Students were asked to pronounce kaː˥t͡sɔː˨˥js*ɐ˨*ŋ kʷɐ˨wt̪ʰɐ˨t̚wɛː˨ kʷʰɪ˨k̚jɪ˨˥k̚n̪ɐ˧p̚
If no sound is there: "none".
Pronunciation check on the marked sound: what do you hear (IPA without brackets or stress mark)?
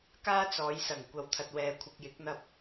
ɐ˨˩